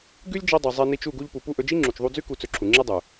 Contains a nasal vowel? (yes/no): no